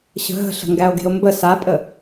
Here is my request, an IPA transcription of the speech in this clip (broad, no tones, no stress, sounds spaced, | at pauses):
ɕ ə̤ ɦ ə̤ ɬ ə̤ ŋ ɡ æ o̯ ɡ e̤ o̯ m b ə s a pʼ ə